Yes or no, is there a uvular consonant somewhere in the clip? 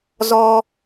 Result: no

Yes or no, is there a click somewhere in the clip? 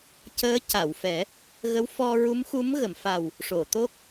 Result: no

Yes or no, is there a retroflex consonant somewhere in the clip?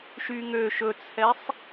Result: no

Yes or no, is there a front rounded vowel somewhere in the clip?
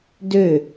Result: yes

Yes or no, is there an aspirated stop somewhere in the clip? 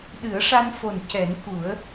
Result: no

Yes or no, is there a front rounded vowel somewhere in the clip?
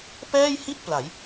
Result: no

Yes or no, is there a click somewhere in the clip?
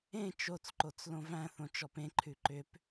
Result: yes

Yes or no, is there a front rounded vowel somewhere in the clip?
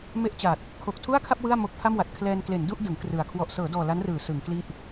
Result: no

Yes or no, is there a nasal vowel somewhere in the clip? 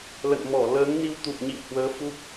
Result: no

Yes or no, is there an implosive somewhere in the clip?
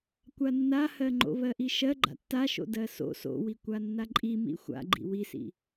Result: no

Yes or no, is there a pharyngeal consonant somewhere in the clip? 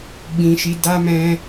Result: no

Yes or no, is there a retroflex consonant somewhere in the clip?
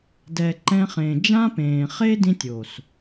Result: no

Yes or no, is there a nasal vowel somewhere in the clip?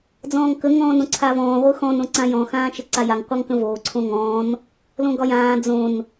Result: yes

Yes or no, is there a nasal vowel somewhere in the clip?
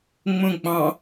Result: yes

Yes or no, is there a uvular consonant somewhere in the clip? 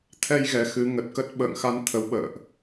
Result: no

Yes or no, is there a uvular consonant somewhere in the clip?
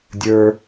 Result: no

